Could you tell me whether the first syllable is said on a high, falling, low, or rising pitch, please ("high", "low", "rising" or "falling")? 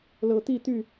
low